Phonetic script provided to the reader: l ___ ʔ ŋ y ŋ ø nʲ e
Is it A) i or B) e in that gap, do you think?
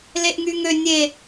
B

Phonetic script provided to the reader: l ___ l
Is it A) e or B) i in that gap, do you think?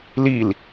B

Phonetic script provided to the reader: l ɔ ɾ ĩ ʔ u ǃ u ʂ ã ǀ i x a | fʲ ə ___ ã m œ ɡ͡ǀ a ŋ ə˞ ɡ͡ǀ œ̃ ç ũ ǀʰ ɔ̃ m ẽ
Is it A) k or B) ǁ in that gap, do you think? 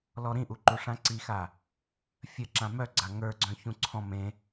B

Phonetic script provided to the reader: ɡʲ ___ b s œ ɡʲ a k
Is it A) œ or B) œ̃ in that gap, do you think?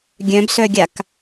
B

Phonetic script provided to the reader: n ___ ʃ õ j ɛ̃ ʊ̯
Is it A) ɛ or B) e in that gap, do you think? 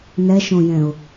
A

